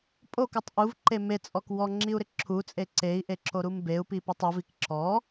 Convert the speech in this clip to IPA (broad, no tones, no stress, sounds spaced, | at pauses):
pʼ o k u tˤ ʔ u v ǃ e m e t͡sʼ ɔ k w ɔ ŋ͡ǁ i u̯ ɾ ɪ ǁʰ u t͡sʼ e ǀ e i̯ ʔ e ǁ o ɾ u m b e u̯ p i p ɪ tˤ ɪ v i k ǁ ɔ